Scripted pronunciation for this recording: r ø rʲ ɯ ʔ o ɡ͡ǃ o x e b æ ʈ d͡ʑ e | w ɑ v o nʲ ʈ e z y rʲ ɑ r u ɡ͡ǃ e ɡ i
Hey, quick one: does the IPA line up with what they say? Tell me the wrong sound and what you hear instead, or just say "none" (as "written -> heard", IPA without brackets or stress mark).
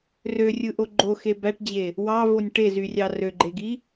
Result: u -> ø